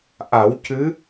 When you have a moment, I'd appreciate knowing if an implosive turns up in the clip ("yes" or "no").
no